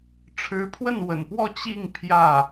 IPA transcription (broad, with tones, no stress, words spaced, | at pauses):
ʈ͡ʂʰɻ̩˧˥pʰwə˥˩nwə̰˨˩npwɔ˥˧ t͡ɕi˥˧ŋ pʰjä˥˩